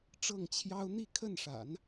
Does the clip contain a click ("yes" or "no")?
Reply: no